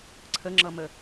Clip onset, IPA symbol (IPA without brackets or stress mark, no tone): ǀʰ